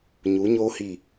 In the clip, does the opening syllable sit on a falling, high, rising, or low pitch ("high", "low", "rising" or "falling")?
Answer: rising